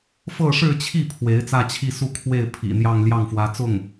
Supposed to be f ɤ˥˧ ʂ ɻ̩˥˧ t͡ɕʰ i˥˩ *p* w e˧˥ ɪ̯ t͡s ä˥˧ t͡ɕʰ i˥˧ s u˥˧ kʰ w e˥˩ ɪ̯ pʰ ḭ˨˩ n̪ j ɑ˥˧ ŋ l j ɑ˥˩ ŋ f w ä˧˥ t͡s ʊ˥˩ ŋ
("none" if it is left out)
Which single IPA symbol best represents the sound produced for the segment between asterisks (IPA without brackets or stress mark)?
pʰ